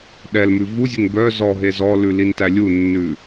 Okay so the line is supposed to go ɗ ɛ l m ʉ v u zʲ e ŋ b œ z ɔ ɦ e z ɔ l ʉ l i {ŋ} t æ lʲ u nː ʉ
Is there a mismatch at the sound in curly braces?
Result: yes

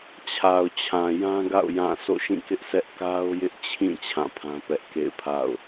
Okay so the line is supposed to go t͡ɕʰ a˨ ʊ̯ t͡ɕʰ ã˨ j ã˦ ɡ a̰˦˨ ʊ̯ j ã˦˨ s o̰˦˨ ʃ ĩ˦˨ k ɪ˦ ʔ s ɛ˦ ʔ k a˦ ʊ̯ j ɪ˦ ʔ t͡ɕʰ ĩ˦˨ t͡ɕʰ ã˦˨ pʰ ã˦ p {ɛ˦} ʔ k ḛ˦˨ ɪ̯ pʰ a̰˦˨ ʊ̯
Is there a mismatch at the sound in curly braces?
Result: no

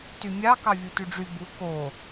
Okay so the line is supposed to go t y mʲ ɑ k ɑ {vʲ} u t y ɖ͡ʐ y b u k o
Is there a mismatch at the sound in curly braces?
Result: no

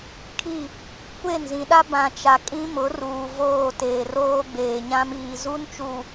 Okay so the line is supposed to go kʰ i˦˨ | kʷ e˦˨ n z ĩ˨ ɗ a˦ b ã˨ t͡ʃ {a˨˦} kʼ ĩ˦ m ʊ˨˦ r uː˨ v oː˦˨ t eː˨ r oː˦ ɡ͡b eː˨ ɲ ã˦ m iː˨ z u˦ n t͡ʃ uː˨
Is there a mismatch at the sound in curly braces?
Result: yes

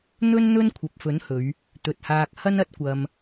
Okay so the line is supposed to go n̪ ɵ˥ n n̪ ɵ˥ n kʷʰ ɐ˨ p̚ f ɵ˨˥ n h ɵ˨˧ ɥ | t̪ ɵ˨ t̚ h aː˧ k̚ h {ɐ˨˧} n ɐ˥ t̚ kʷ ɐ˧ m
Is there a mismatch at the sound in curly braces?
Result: yes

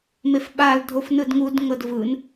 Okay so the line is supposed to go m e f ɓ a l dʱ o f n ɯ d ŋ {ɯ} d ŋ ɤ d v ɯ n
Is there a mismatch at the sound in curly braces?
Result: yes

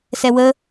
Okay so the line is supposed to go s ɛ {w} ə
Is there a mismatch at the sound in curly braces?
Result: no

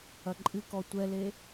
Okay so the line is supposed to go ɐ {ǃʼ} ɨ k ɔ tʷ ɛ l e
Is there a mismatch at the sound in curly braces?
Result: no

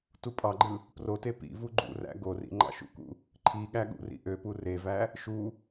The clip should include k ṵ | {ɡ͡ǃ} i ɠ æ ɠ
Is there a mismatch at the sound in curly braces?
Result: yes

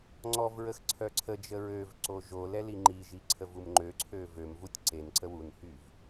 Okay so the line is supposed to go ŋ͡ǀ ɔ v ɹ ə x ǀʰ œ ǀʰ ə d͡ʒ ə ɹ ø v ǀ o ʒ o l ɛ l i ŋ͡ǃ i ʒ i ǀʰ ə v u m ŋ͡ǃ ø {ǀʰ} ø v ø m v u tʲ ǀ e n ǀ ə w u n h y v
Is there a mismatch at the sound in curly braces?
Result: no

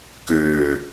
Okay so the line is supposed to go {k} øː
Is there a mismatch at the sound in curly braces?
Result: no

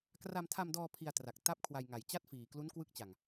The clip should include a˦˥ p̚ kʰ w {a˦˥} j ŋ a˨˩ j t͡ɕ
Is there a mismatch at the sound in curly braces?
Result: yes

